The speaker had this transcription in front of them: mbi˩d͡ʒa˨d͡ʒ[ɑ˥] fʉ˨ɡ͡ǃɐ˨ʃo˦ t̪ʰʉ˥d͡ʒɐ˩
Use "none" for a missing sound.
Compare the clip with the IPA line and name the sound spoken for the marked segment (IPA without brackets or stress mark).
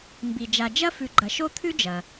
ɐ˥